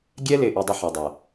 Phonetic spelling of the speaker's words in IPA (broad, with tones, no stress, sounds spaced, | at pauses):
ɡʲ ɛ˦ l ɪ˨ ʔ i˨ dˤ ɪ˦ ħ ɐ˨ dˤ ɐ˨